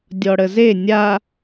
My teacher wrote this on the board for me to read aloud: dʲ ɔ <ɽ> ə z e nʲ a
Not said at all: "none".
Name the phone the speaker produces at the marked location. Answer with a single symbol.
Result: ɽ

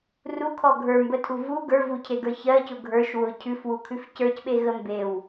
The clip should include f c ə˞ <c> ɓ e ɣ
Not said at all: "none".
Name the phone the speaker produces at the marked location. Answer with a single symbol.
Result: c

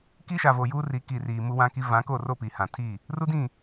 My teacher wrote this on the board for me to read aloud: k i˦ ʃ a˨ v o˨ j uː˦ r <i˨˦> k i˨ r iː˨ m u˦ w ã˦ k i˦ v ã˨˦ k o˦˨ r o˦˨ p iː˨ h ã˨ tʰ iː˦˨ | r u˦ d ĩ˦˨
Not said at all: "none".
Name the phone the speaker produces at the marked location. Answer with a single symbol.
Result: i˨˦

